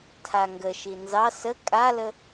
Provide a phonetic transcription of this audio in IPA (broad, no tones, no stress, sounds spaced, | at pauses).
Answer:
tʰ a ŋ ɡ ə ʃ i n z ɑ s ə kʼ a l ə